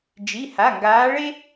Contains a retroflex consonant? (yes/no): yes